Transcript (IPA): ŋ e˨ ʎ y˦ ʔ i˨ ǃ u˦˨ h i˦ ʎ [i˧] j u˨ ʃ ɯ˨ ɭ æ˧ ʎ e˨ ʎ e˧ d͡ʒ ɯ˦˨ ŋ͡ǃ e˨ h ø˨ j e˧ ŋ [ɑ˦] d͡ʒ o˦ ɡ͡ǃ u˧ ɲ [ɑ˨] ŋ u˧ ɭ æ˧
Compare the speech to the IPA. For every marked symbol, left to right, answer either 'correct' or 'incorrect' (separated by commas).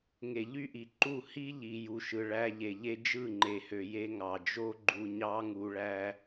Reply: incorrect, incorrect, incorrect